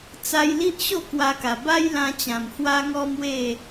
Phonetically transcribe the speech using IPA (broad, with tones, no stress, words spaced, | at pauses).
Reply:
t͡sa˧jli˦ʔɕo˥˧ kwa˧ka˨˩ ba˦jlã˧t͡ɕã˨˩m hwa˦ŋɔ˦mwe˥˧